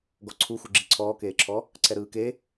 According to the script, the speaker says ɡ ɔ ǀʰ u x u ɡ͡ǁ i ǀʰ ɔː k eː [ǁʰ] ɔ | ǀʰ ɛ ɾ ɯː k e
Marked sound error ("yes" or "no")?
no